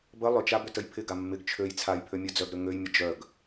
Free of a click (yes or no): yes